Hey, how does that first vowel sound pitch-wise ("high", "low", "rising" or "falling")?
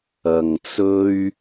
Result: low